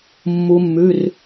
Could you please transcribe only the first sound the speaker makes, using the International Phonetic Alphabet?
mː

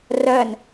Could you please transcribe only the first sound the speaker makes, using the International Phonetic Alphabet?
r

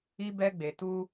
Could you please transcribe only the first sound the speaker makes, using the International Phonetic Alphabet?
i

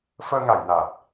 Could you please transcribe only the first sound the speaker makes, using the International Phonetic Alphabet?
f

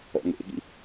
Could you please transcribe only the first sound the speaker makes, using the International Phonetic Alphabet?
ɔ̰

